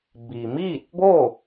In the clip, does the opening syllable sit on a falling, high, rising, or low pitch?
low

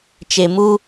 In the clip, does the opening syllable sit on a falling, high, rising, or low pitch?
low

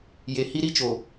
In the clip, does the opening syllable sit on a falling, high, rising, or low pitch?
low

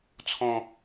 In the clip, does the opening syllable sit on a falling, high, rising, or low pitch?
low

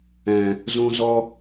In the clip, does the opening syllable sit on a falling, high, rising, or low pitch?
low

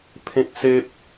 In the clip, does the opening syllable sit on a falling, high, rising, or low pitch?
high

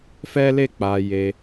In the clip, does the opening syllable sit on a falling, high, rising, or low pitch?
high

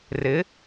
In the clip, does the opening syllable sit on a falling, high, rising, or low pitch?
rising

